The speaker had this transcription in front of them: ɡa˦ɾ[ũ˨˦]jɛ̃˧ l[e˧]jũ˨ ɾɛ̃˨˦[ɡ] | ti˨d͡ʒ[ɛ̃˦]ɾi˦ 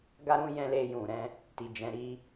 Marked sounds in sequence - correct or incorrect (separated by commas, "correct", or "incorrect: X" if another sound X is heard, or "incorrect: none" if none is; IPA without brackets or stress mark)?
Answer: incorrect: ũ˦, correct, incorrect: none, incorrect: ɛ̃˨˦